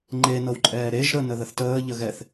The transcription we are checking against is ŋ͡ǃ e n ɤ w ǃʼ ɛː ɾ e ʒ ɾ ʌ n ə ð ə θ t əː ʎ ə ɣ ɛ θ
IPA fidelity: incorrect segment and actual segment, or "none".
ʌ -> ə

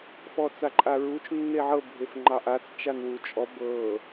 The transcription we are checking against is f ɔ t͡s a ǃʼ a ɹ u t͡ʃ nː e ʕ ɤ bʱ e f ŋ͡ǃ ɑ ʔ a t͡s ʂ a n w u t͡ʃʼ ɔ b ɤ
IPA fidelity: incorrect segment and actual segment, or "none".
ʂ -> t͡ʃ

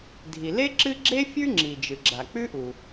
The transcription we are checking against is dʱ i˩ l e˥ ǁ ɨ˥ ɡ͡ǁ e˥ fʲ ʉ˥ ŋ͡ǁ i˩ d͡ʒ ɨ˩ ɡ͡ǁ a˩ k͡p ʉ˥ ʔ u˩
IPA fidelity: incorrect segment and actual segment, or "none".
none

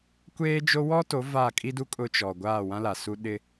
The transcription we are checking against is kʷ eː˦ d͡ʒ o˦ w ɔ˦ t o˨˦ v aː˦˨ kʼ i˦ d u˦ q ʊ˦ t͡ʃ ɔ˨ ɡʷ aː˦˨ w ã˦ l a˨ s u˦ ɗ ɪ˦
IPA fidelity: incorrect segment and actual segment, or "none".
q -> kʼ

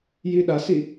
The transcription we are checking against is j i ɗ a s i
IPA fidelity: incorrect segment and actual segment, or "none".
none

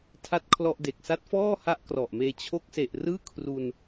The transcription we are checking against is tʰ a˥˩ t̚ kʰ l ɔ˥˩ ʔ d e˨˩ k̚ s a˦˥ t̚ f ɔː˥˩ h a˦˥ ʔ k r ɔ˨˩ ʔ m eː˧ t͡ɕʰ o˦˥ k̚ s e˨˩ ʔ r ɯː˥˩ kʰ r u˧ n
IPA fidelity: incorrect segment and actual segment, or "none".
none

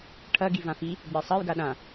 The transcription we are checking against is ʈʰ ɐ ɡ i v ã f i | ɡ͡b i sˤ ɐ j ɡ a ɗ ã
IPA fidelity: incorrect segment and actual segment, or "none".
none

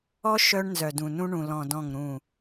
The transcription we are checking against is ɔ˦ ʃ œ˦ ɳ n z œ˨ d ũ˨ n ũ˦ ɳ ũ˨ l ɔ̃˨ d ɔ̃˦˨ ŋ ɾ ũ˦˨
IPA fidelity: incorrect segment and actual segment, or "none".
none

